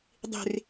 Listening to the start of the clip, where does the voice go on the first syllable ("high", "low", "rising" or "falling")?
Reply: low